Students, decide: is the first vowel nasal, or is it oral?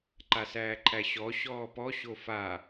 oral